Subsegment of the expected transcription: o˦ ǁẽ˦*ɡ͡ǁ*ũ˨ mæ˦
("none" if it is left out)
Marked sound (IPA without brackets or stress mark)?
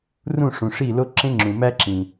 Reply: ŋ͡ǁ